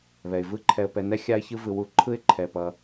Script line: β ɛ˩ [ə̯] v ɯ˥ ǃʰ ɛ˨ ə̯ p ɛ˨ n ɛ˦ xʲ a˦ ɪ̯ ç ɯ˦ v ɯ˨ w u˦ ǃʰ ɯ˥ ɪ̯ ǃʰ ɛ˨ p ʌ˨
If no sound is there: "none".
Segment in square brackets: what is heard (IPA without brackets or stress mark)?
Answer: ɪ̯